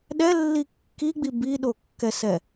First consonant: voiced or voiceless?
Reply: voiced